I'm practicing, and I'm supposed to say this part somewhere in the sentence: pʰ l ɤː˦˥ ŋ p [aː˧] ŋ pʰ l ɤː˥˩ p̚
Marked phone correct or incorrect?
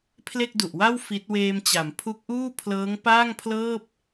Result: incorrect